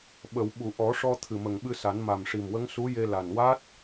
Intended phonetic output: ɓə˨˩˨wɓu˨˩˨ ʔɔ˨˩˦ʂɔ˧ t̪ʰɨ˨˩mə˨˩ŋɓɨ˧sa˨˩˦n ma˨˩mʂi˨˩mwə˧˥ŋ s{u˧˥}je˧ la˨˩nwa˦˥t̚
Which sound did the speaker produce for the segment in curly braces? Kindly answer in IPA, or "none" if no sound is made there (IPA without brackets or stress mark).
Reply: u˧˥